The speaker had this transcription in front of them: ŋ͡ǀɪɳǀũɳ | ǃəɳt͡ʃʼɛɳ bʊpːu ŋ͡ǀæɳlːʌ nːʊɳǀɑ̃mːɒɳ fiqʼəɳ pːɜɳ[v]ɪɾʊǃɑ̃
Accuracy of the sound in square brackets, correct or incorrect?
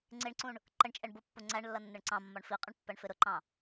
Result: incorrect